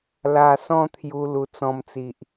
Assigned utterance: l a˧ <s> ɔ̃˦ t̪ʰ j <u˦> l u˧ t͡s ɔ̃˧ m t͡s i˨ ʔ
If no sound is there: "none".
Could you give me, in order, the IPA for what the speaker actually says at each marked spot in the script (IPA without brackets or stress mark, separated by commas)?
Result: s, u˧